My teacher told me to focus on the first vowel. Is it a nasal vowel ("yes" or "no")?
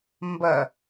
no